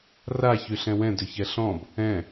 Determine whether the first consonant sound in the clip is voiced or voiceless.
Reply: voiced